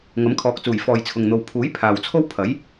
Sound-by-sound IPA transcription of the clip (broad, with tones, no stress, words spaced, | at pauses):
ŋɐ˨˥mkʰɔː˨˥k̚t͡suː˨˩j fɔː˨jt͡sʰʊ˨ŋn̪o˨w pʰuː˨˥j pʰaː˨wt͡sʰo˥w pʰɐ˨˥j